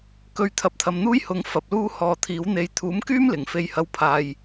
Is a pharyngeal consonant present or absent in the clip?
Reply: absent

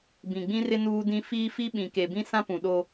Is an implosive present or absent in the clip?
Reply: present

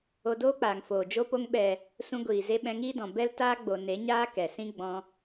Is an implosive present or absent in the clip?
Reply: present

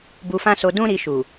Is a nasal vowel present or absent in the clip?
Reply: present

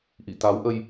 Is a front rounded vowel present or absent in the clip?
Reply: absent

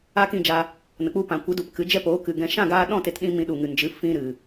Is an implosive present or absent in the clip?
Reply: present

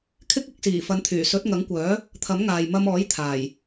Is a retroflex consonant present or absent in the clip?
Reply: absent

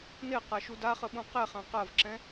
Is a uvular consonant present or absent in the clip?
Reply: present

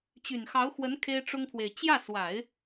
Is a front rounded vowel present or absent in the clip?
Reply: present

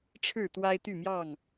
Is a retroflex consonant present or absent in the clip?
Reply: present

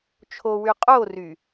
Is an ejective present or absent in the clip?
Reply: present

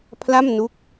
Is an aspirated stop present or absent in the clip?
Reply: present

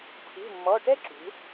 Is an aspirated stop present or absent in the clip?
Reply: present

